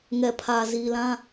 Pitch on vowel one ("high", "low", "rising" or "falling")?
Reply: low